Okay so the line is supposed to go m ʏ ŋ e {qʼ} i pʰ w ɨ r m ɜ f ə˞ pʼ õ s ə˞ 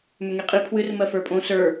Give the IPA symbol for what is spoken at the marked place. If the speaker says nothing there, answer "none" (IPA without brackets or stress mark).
qʼ